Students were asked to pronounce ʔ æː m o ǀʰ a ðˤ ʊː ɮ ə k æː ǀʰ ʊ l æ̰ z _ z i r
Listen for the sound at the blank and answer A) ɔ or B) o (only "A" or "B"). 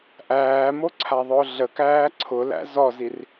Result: A